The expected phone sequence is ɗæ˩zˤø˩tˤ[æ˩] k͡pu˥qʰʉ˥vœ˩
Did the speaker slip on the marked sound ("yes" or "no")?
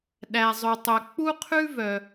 yes